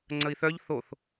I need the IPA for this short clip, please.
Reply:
ŋ͡ǀ ə i̯ θ œ ʎ θ o θ

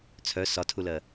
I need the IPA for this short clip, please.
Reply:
t͡sʰ œ s ɒ tʰ u l ɜ

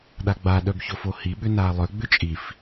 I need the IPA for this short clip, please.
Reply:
ɗ a ɡ͡b a ɗ œ b ç o f o h i ɓ ʏ n a lˠ œ ɡ͡b ʏ t͡ʃʼ i f

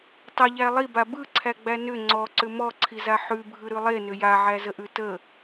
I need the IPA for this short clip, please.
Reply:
tˤ ə ʎ æ lˠ i b a b ɯ ǀʰ æ ɡ͡b æ n ʏ ŋ͡ǀ ɔ ǀ ʏ m ɔ ǀʰ i z a ħ ʉ bʱ ɯ ɾ ʉ lˠ e n ʏ j a ʕ æ z ə ʔ ʉ t ə

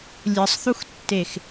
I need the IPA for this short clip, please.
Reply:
lʲ ɯ sˤ θ u x tː e x

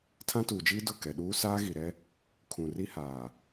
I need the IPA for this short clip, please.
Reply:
tʰ ã˦ t uː˨ d͡ʒ iː˦ d ʊ˦˨ k ɛ˨ ɗ uː˦ s aː˦ ɣ i˨ ɾ ɛ˦ | kʰ ũ˨ r i˦ h aː˨

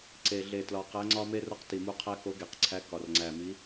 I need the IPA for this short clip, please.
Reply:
ǀ e˨˩ ɮ e˨˩ t l ɒ˨˩ q æ˨˦ ŋ͡ǀ ɒ˦ m e˦ r o˦ q t i˨˩ m u˨˦ qʰ æ˦ k o˨˦ ɡ e˨˩ q ǀʰ æ˨˦ k ɒ˨˩ r ŋ͡ǀ æ˨˩ m i˨˦

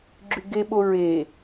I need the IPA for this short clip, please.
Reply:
ɡ͡ǁ y ɡ e ɓ o ɹ e

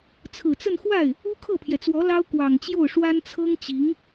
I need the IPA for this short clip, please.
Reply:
t͡sʰ ɹ̩˨˩ t͡s ə˥˧ n x w a˥˩ ɪ̯ | u˥ kʰ ɤ˥˩ pʰ j ɛ˩ t͡s w ɔ˧˥ l ɑ˥ ʊ̯ k w ɑ˨˩ ŋ t͡ɕ j o˥˩ ʊ̯ ʂ w a˥ n t͡sʰ ɤ˥ ŋ t͡ɕ i˧˥ ŋ

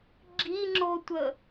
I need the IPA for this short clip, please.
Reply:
ɡ͡ǁ i ŋ͡ǁ o tʷ ə

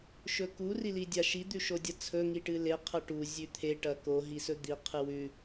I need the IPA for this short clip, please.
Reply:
ʃ ɵ k u r i l i dʲ a ʃ i d̪ ʉ ʃ o dʲ ɐ t͡sʰ ɵ ŋ i ʈ ɨ l e qʰ ɐ ʈ u zʲ ʉ t̪ʰ e ʈ ɐ k o ɦ i s ɵ d̪ i qʰ ɨ w ʉ

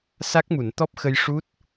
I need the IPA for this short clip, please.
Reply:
s a˦˥ k̚ m u˨˩˨ n t̪ ɔ˦˥ p̚ x ə˧ j ʂ u˦˥ t̚

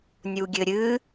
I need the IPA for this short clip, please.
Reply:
nʲ u ɡʲ ɘ ɾʲ ɨ

